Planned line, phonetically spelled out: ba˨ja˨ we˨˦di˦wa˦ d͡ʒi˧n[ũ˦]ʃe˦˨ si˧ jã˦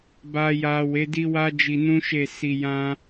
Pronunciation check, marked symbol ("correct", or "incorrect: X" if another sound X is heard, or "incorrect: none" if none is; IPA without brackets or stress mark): correct